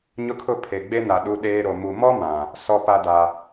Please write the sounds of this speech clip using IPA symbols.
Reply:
ɲʊ˦kʰʊ˦ pʰe˨ɡ͡be˦na˨ ɗu˦ɗeː˦ ɾo˨ mu˨mɔ˦ mã˨ | sɔ˦˨pa˦da˨

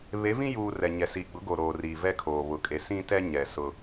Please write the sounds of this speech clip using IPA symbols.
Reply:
βe˨˦vĩ˦juː˨ rɛ˨ɲɛ˨siː˨ ɡ͡bʊ˨˦ɡo˨ ɾoː˨riː˨ vɛ˦kʰoː˨ βʊ˨kʼe˨ sĩ˦tɛ˦ɲɛ˨ sʊ˦

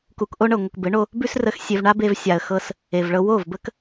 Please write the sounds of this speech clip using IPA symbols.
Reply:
ku˨kʔo˧ɳɤ˨ŋʷə˨k bɘ˨˦ɳo˧ | bʉ˦srə˧x sʲe˨v ɳa˦be˧v sʲa˨ə̯ xɤ˧s | e˨vɭɤ˧ wo˦˨vbə˦k

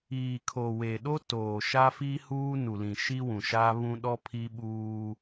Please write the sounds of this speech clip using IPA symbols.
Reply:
iː˨kʰo˨ we˨ɗo˦ toː˨ ʃa˦fi˦huː˦ nu˨lĩ˨ʃi˦ wũ˨ʃa˦βũ˦ ɗɔ˦pʰi˦ɓuː˦

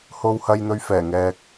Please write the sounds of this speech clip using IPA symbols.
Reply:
ho˨w hɐ˨jn̪ɵ˨ɥ fɛː˨˩ŋɛː˨k̚

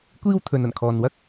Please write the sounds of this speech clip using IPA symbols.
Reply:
kʷiː˥wt̪ʰɵ˨˧nɐ˨˩n kʰɔː˨nwɐ˥k̚

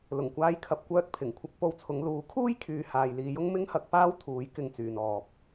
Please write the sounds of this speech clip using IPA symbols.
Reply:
lʊ˨˩ŋkʷaː˧jkʰɐ˨p̚kʷœː˧t̚ pʰɪ˨˩ŋkʷʰɐ˧k̚ po˧wt͡sʰʊ˨˧ŋ luː˨˥kʰuː˥jkʰyː˨ haː˨jliː˨˧jʊ˥ŋ mɪ˥ŋhɐ˨˥k̚paː˥wt̪ʰuː˨˥j kɪ˧ŋt͡syː˨nɔː˨p̚

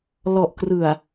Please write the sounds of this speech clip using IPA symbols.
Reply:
lɔ˨˩ʔkrɯ˨˩a̯

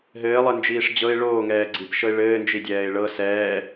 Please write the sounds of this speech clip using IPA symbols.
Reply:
ɦɘːlˠɘnd͡ʒiːʂ d͡ʑɤɪ̯ ɭoːŋɛː ɡ͡ǀipʃɤɪ̯ ɭɘːnd͡ʒidʲɛːɪ̯ ɭɤ sɛː

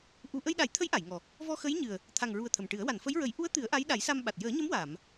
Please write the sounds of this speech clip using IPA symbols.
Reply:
ʔu˧ ʔə˧jɗa˨˩˦jt̪ʰə˧˥j ʔa˨˩˨jŋɔ˨˩ | vɔ˧xə˧˥jɲɨ˨˩ə̯ | t̪ʰa˨˩ŋɹu˨˩ə̯ t̪ʰə˨˩mʈɨ˨˩˦ə̯ wa˨˩˨n fə˧˥jɹə˨˩˦j ʔu˧˥ə̯ t̪ɨ˨˩˦ə̯ʔa˧˥j ɗa˨˩˦jsa˧mɓa˨˩t̚ jəː˨˩˦ɲə˧˥mwaː˨˩˨m

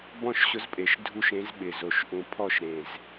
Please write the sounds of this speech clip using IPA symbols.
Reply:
bɔ̃˥˩ʃɕʊ˧˥zpʼe˨˩ʃ dʱu˥˩ʃ ẽ˧˥zɓɪ˨˩ zo˨˩ʃʔũ˨˩pʰɔ˥˩ʃɾẽ˨˩z

